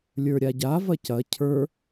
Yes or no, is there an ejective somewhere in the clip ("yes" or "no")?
no